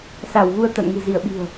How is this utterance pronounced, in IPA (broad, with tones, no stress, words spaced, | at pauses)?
sa˧˩wɣu˧ə̯t̪a̰˧˨n ŋɨ̤˨˩zi˧˩ə̯ɓi̤˨˩ə̯